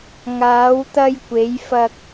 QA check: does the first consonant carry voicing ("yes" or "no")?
yes